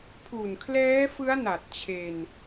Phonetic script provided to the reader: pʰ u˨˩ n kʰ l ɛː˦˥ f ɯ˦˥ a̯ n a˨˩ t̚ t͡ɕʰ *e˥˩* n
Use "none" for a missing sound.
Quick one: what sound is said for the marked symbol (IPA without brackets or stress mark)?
e˧